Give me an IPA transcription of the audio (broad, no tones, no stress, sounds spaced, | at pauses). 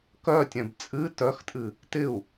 k œ tʲ ɛ̃ b t͡sʼ ɨ t œ x tʼ ɨ | t ɪ u̯